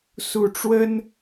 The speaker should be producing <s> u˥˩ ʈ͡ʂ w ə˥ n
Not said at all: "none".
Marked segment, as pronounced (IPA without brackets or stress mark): s